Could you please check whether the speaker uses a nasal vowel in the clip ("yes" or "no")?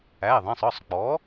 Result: yes